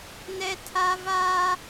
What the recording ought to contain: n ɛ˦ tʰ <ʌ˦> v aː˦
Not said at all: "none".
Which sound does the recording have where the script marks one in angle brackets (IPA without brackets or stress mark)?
a˦